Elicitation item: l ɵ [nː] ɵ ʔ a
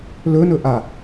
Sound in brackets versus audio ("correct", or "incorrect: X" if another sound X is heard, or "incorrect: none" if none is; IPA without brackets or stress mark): incorrect: n